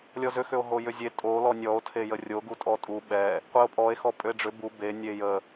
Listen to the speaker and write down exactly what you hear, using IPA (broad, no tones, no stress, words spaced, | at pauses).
lʲɔzʏ xʏo̯ɦojʏzʲe tʼo lɔnʲɔo̯ tʰejərʲo ɡutʼɔtʼu ɓɛ | qʷeo̯pʼɔe̯ xɔpʼʏe̯ɖ͡ʐʏ bu be nʲejə